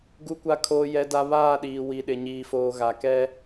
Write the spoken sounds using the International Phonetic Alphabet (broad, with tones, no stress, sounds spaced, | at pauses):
ɡ u˨ kʷ a˨ kʰ oː˨ j ɛ˨ d a˨ β aː˦˨ ɗ iː˨ w i˨ ɗ ɪ˨ ɲ iː˨ f oː˨ ɣ a˨ k ɛ˦